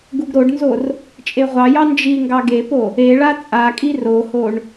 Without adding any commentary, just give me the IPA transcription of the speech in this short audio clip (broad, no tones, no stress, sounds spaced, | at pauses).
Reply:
ɡ u ɡ ɾ o ɖ n z o r | t͡ʃʼ e ʁʷ ɑ j ɑ n d͡ʒ i ŋ ɡ ɑ ɡ e p o | e ɭ a t͡sʼ a kʼ i r o h o ɳ